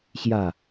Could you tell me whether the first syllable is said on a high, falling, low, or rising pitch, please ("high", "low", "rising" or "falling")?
falling